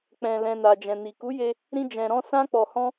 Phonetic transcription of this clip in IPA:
k͡pɛ̃˨lɛ̃˨na˨ d͡ʒɛ̃˨ni˨ku˨˦je˧ | ɾĩ˦d͡ʒɛ̃˧ɾɔ̃˦ sã˦k͡pɔ˧hɔ̃˦

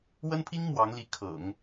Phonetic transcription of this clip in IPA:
wə˥npʰi˥ŋ mwɑ˧˥ŋli˧˥ kʰɤ̰˨˩˦ŋ

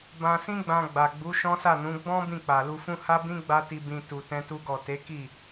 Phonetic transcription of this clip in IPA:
bã˧sĩ˦ɡ͡bã˧ ɡ͡ba˨ɡ͡bu˨˦ ʃɔ̃˦sa˦˨nũ˨˦ ɡ͡bɔ̃˦ bĩ˦˨k͡pa˨lu˧fũ˦ ha˦bĩ˦ ɡ͡ba˦ti˧bĩ˧ tu˧tɛ̃˦tu˦ɡɔ˦˨ te˨˦ki˦˨

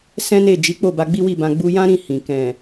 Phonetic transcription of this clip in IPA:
sɛ̃˦ne˦˨ d͡ʒi˨˦k͡po˦˨ ba˧ɡ͡bi˦wi˦˨bã˧ ɡ͡bu˧jã˦ɾĩ˦˨ hĩ˨ kɛ̃˨

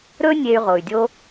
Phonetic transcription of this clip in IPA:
ɾɵ˦ nʲe˧y̯ʁo˨y̯dʲo˦

